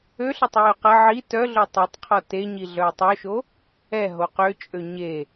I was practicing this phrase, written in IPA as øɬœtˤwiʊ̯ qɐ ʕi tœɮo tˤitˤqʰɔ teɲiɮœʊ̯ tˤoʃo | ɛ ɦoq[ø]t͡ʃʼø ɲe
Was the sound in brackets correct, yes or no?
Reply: yes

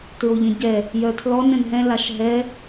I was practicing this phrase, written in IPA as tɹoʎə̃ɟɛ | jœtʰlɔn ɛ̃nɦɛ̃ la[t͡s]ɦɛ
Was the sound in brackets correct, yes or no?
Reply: no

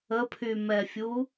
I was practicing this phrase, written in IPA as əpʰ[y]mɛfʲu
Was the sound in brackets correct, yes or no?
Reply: yes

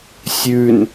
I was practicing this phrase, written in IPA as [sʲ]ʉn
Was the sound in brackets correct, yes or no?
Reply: yes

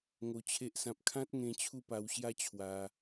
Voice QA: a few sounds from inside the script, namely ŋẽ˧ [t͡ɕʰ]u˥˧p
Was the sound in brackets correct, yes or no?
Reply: yes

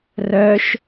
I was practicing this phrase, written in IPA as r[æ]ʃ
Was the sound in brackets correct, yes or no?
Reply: no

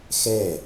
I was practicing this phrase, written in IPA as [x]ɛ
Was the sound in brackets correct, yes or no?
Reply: yes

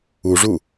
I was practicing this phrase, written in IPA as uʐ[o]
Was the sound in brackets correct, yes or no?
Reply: no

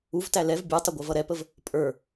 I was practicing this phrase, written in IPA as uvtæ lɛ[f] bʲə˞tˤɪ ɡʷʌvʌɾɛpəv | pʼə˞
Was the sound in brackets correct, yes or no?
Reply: no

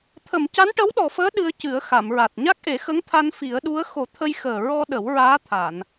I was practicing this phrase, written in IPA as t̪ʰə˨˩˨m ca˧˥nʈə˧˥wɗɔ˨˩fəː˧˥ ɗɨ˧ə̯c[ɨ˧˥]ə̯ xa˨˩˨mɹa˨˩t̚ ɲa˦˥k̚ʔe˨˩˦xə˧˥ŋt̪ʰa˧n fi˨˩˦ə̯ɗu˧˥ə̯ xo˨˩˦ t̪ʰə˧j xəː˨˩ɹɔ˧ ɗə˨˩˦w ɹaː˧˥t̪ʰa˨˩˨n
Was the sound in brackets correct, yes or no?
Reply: no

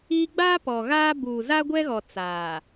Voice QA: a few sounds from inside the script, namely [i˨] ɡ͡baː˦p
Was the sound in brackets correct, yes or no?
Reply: no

